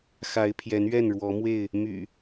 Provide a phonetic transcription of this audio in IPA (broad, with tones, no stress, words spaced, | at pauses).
xa˨˦ɪ̯pʰjɛ˨˦nɥɛ˥˨n ɻwɔ˨˦mwe˥˨ɪ̯ | my̰˨˩